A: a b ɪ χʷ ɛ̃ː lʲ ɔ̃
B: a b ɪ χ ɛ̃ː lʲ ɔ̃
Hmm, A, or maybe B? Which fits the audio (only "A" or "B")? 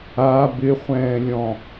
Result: A